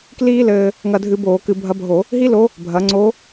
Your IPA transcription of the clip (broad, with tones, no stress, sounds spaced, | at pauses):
k l iː˥ l ɘː˧ | ŋ ɐ˧ dʱ ɨ˧ b oː˧˩˧ k ɨ˧˩˧ bʱ ɐ˧˥ bʱ o˧˩˧ | ɦ i˥ l o˧˥ | bʱ ɐ˩˧ ŋ͡ǀ o˧˥